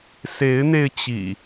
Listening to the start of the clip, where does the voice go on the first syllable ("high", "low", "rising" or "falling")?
rising